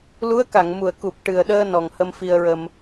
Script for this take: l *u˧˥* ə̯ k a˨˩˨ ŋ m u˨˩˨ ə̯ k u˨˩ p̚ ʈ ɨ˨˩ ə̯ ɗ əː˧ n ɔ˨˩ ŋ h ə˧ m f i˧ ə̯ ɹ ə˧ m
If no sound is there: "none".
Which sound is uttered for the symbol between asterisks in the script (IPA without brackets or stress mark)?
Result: u˧˥